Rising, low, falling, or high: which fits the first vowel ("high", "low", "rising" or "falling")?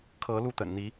rising